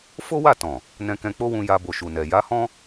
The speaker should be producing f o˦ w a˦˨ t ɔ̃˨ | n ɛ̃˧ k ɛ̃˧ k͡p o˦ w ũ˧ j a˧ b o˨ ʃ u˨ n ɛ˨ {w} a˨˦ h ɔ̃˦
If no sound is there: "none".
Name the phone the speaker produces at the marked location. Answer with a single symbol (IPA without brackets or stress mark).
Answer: j